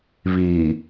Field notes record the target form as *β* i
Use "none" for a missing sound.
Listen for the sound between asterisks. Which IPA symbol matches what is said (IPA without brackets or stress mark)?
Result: β